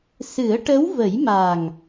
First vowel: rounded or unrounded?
unrounded